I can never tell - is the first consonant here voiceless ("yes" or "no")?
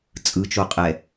yes